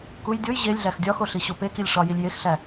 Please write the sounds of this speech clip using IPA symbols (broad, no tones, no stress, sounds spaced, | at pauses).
k u j dʲ o j ʑ e lʲ ɮ æ x dʲ ɒ x o ɬ i ɕ o p e k i lʲ ʂ ɒ j i lʲ j e x ɬ æ